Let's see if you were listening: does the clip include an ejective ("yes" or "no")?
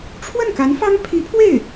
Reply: no